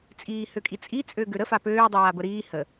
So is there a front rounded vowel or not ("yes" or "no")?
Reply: yes